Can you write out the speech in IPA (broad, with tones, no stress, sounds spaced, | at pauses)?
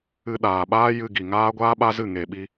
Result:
ɨ˧ ɗ aː˨ ɓ aː˦ j ɨ˧ ɡ i˨ ŋ aː˦ ɡʷ aː˦ ɓ a˦ z ɨ˦˨ ŋ e˨ ɓ i˧